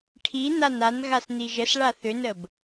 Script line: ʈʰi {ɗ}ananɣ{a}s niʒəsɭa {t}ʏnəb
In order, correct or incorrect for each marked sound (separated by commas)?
incorrect, correct, incorrect